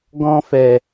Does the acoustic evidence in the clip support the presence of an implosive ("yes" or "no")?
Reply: no